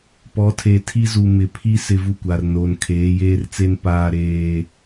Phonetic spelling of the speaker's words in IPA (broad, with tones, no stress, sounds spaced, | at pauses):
p ɔ˨˦ tʰ e˨ tʰ i˦ z u˨ m ɪ˨ pʰ i˦ s ɪ˦ v u˦˨ kʷ a˨ r n o˨ n kʰ eː˨˦ j eː˦ r t͡s e˦ n p aː˦ ɾ eː˦